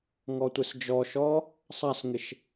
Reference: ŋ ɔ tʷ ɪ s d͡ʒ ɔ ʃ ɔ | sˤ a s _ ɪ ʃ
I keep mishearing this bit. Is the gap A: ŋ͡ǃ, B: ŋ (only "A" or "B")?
B